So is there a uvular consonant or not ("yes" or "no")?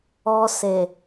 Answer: no